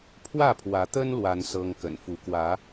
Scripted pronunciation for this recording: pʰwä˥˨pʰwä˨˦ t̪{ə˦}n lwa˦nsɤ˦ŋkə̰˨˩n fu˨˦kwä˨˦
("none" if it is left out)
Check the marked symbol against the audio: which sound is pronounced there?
ə˦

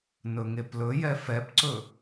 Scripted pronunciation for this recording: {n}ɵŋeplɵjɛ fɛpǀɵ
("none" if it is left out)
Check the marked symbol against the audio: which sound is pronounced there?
n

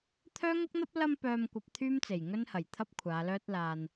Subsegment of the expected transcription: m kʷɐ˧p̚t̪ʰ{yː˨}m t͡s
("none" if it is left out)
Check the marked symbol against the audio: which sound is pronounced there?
yː˥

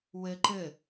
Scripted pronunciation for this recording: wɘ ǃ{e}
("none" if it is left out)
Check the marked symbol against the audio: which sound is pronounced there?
ɘ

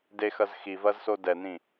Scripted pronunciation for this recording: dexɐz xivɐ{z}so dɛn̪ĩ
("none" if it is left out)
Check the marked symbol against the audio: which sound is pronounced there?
z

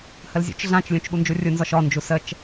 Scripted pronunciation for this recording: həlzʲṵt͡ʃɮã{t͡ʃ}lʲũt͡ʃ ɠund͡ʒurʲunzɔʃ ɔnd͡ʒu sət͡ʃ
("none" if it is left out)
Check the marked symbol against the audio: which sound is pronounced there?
t͡ʃ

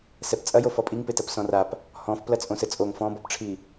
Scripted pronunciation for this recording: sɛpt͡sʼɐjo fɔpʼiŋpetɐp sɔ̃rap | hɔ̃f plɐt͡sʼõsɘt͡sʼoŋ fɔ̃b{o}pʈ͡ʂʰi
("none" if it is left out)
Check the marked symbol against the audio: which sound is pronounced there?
ɔ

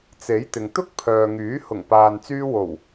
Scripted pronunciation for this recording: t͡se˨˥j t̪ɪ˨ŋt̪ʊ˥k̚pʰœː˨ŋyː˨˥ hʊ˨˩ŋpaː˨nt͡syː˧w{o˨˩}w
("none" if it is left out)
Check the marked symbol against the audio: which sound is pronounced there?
o˨˩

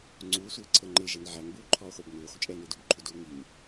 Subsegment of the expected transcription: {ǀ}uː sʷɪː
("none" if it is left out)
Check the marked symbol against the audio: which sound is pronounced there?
ŋ͡ǀ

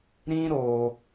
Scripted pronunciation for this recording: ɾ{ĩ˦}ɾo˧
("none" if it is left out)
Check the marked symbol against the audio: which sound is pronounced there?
ĩ˦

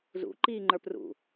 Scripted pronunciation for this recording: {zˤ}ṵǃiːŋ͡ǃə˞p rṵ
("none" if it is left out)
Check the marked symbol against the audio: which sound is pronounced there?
z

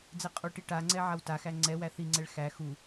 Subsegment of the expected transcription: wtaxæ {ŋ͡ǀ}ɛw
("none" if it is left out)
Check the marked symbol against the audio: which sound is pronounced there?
ŋ͡ǀ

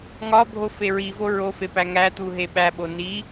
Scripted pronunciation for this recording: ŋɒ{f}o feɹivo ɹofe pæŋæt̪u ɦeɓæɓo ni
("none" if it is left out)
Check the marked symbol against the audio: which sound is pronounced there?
bʱ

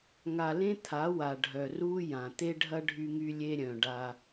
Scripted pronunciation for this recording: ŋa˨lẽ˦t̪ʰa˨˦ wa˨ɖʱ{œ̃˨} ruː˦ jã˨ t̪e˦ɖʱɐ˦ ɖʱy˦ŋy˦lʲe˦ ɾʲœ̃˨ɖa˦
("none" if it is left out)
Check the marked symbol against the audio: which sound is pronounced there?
œ˨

